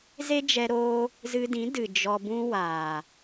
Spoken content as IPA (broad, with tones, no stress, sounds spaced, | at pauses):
z e˦ d͡ʒ ɛ˧ ɾ oː˧ | z ɨ˧ d ĩ˨˦ d ɨ˨ d͡ʒ ɔ˧ b ũ˦ w aː˨